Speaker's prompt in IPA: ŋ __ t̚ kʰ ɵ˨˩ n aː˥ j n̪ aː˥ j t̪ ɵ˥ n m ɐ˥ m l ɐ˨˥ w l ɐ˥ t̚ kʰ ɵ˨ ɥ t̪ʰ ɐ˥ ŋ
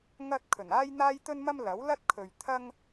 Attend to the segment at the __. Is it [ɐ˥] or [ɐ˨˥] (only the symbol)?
ɐ˥